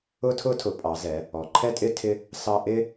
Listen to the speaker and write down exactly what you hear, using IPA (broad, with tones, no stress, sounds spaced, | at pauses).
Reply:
ʊ˦ tʰ ʊ˦ tʰ ʊ˩˧ pʼ ɑ˩˧ z ɛ˩˧ | ɔ˩˧ ǃʰ ɛ˦ tʼ ɪ˦ tʰ ɪ˦ | s ɑ˦ ʔ ɪ˦